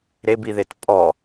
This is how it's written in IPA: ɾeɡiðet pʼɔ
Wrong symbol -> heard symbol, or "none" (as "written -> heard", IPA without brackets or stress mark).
ɡ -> b